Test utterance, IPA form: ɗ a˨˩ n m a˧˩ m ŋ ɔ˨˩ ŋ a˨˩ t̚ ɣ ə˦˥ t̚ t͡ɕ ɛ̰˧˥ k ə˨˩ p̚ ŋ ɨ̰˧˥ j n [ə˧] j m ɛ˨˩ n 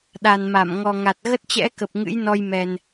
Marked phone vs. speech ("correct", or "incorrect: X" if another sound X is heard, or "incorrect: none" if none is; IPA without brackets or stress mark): incorrect: ɔ˧